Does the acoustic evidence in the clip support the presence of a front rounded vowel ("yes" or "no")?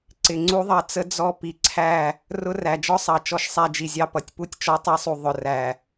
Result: no